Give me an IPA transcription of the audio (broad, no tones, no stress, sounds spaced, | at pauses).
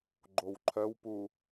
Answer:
ɡ͡ǃ o w ǃʰ œ w p u